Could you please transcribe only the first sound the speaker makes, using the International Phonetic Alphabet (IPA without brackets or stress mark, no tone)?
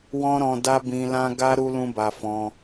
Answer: w